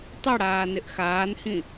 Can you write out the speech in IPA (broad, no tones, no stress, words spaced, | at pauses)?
tˤɪɽaː nɪʔxaːnhĩ